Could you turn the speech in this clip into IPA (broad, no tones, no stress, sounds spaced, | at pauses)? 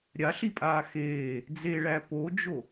ɾʲ a ɬ i pʼ aː x eː | d͡z e ɭ æ p o d͡ʒ o